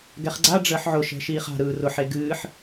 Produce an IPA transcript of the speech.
ɡ ɛ χ ɡ͡ǀ a ɖ͡ʐ əː ħ ʕ ʊ ʃ ɛ̤ ʃ iː χ a̤ ɾ ɯː r ʊ ħ e ɡ ɨː ħ

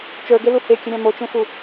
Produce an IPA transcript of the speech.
t͡ʃ ə˞ ɡ e l u h e kʲ ə ɾʲ ɑ̃ m o t͡ʃ ẽ f u

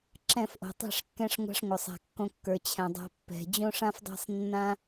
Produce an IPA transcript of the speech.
ǁ ɛ̃˦˨ f ʔ o̤˨ tˤ ɛ̤˦˨ ʂ kː ɛ̃˧ ʂ ŋʷ a̤˧ ʂ ŋʷ ə˞˨ sˤ a̤˨ kː õ˧ kː ə˞˨ t͡ɕʰ ɛ̃˨ dˤ a̤˧ pː ɛ̤˨ d͡ʑ õ˦ ʂ ã˦ f dˤ a̤˦ sˤ nː ã˦

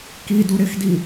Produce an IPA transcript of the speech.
k i d u ɾ ɪ x d i

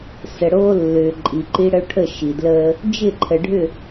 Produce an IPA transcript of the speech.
s ə˨ ɽ oː˦ lː ʏː˨ ǃʼ i˨ ǃ i˦ ɽ ə˦ o̯ ʈʰ ə˦˨ ʃ i˨ d l əː˦ | d͡ʒ ɪ˦˨ ǃʰ ə˨ ɖʱ ʏ˦˨

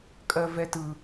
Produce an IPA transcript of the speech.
kʼ ɜ v ɛ t ɯ

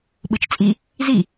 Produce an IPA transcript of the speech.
ɓ ɯ t͡ʃ t͡sʼ i | z i

